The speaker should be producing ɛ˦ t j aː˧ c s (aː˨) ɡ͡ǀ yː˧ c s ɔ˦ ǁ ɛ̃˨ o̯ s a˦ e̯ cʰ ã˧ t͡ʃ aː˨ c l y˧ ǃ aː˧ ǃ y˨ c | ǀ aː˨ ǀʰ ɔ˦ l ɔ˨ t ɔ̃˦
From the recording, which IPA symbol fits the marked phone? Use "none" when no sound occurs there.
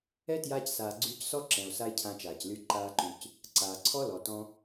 aː˨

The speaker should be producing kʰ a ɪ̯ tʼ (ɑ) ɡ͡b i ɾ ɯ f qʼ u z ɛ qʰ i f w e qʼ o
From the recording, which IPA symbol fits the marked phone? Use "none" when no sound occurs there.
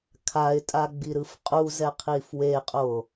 a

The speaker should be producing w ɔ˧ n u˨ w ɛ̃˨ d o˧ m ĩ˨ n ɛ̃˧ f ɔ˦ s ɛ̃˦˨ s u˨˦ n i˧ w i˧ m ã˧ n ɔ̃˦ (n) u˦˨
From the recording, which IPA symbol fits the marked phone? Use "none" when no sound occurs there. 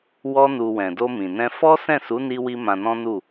n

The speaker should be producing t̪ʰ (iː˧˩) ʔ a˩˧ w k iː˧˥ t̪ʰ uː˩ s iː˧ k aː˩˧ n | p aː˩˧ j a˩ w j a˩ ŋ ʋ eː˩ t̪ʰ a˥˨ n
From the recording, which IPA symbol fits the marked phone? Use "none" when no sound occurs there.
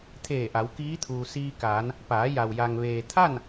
eː˧˩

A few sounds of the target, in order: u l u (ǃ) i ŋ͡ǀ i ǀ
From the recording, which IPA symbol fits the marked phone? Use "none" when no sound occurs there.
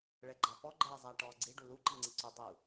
ǃ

